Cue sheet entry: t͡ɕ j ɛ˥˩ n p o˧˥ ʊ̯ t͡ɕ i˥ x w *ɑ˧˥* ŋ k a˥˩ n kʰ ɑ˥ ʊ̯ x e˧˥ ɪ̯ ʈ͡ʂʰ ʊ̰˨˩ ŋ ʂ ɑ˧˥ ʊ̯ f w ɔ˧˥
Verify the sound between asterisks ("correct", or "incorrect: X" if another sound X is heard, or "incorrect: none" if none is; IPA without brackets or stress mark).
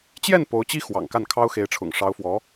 incorrect: ɑ̰˨˩